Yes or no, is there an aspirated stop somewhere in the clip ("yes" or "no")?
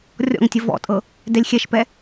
no